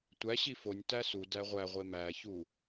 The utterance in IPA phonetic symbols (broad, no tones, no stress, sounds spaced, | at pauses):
tʷ æ ɕ i f o nʲ t æ s u d æ ʁʷ æ ʁʷ e m æ ç u